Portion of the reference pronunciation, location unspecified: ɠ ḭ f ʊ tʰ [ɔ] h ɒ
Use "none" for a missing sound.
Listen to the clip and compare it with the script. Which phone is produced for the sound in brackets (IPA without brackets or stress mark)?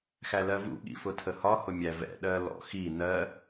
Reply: ə